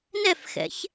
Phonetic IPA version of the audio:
n ɛ f x ɛ̰ ç

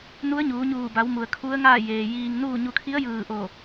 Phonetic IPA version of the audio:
n u˧˥ ə̯ ɲ uː˩˧ ɲ uː˧˩ b a˩˧ w m u˩ ə̯ kʰ u˧˥ ə̯ ŋ aː˥˨ j eː˩ j iː˧ ŋ n uː˥˨ ɲ u˧ kʰ i˧˥ ə̯ j ɯː˧˩ ʔ o˧˩

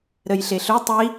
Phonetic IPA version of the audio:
ɾ ə j ɬ e ɬ ɵ tˤ i

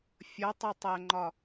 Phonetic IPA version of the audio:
fʲ ʌ tˤ ʌ tˤ æ ŋ͡ǃ ɒ

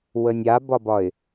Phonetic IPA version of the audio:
w ə nʲ a b ɒ b ɒ ɪ̯

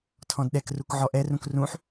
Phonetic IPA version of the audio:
tʰ ɔ̃ d ɗ ɛ k r u k ʕ ɔ ʔ ɛ r ũ k r ũ ħ

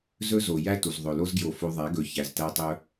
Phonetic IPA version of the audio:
z ɵ˦ z o˨ j æ˦ t u˨ z ðˤ ɵ˨ l o˧ z ɡ j o˨ f o˧ ðˤ æ˨˦ ɡ ɵ˨˦ ç æ˨ z t æ˧ tˤ ɵ˧

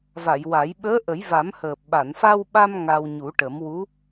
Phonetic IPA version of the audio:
v a˨˩˨ j w a˨˩˦ j ɓ əː˧˥ ʔ ə˨˩˦ j v a˨˩˦ m h əː˨˩ p̚ ɓ a˨˩˨ n f a˧ w ɓ a˧ m ŋ a˧ w ɲ u˨˩˦ ʈ ə˨˩˦ m w u˧˥

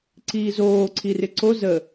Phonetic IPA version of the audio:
ǀ iː z oː ǀʰ i r ɪ ǀ o z ə

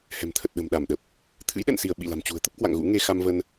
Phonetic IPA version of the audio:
h ɛ̤˨˩ m t̪ʰ ə˨˩ t̚ ɗ ə̤˨˩ m ɗ a˧˩ m ɗ ə˨˩ p̚ | t̪ʰ ɨ̰˧˥ j ɗ ɛ̰˧˨ n s i˧˩ ə̯ ɓ ḭ˧˨ l a̤˨˩ m t͡ɕ ṳ˨˩ ə̯ t̪ ə˦˥ p̚ k w a̰˧˨ ŋ ɣ ṵ˧˥ ŋ e˧ x a˧ m v ə˧ n

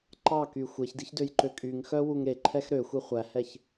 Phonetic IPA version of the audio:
ǃ ɑ k y xʷ e ç d i ç d ø j ǃ ø kʼ y ŋ x œ w u ŋ ɾ e ǃʰ ɛ x ɾ ø xʷ e χʷ æ h ɛ ç

